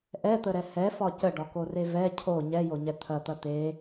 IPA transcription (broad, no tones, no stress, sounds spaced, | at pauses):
ʔ ɛ t̪ ə ɾ ɛ h ɛ f ɒ c ə ɖ ɒ k o r e v ɛ cʰ o ɲ ɛ j o ɲ ɛ t̪ʰ ɐ t̪ ɐ t̪ e